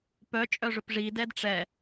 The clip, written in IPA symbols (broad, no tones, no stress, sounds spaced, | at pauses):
p œ t͡ʃʼ œ ʐ ɵ p ʐ iː d ɛː d ʈ͡ʂ ɛ